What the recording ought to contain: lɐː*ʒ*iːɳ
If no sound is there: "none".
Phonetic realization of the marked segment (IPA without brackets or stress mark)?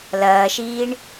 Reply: ʃ